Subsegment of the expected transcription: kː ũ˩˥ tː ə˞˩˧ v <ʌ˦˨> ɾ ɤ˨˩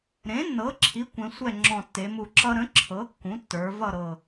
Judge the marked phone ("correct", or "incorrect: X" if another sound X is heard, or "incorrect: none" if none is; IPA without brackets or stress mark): correct